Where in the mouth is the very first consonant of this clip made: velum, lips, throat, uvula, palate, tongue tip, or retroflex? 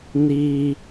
tongue tip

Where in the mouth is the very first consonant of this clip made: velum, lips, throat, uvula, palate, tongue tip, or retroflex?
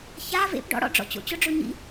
palate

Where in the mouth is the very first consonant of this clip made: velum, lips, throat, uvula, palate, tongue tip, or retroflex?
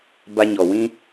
lips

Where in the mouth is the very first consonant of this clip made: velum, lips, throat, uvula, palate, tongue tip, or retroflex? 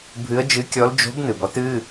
lips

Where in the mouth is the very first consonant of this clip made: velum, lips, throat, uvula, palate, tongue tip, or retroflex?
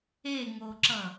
velum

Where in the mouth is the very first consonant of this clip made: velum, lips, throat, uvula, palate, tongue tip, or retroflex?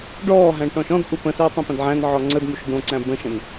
retroflex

